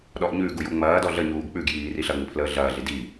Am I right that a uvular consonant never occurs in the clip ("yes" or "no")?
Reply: yes